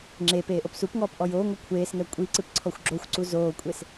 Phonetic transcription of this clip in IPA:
ŋ͡ǁ e p eː ʔ o p s u p ŋ ɔː p ʔ ɔ j oː ŋʷ e kʷʰ eː s ŋ ɛ kʷʼ i ǀ ɨ p ǀʰ ɔ xʷ ɡ͡ǁ o xʷ ǀ u z oː kʷʼ e s

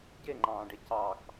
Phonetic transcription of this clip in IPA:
ɟ e ŋ͡ǃ ɑ̃ː ɖ e c ɑ x

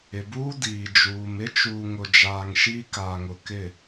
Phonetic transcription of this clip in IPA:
ɪ˨ b uː˦ d iː˨ d͡ʒ uː˨ m ɪ˦ t͡ʃ uː˨ ŋ ʊ˨ d͡ʒ aː˨ ŋ ʃ iː˦ k aː˨ ŋ ʊ˨ k ɪ˦˨

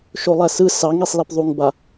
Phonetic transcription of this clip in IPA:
ʃ o lˠ æ s ɯ s ɑ ŋ i sˤ l i p ðˤ u ŋ b a

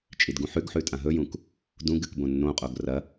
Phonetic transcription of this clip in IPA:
t͡ʃʼ i d ɡ ũ ħ ʉ ɡ ħ ʉ tʼ ã ɦ ɵ j ũ k | d ũ ɡ ɨ k b õ nː õ qʼ o ɡ r ɐ

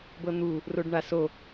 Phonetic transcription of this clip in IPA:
b ɤ n̪ u | r o ɖ ɳ a s o

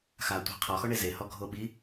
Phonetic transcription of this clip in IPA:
x a tʷ i̤ qʰ ɔ x ɔ ɳ e z e h ɔ ɡʱ o ɓ i

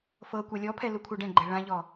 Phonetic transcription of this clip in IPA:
f ɤ kʷ a lʲ ɔ pʰ ɛ l u kʷʰ ɛ ɖ ɛ̃ ɡ͡ǃ ɛ ɭ ã ʎ ɔ

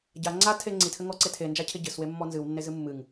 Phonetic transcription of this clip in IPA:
ɟ a ŋ͡ǀ a tʰ e ŋ͡ǀ i tʰ ɘ ŋ ɔ ǀ e tʰ e n d͡ʒ a cʰ e ɟ ɘ s w e mː ɔ n z ɨ w nː e z ɨ mː ɨ ŋ

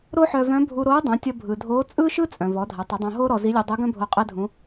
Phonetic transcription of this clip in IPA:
ɾ o˥ ħ œ˧ v œ̃˧˥ bʱ u˧ ɾ oː˧˥ dˤ õ˩˧ tʲ ʌ˧ bʱ ɯ˩ dʱ oː˧˥ t͡sʼ ɯː˥ ʃ ɯ˥ t͡sʼ œ̃˩ v ɔ˩˧ dʱ ɐ˩˧ tˤ u˩˧ dˤ õ˧ ɦ oː˥ ɾ ɔ˧ z i˧˥ lʲ u˧ dˤ ɯ˧˥ ɡ œ̃˥ bʱ o˧ qʼ ɛ˥ dʱ ũ˧˥

